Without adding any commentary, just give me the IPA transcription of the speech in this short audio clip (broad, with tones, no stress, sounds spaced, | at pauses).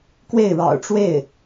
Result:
k w e˥˩ ɪ̯ ɻ ɑ̰˨˩ ʊ̯ ʈ͡ʂ w e˥˩ ɪ̯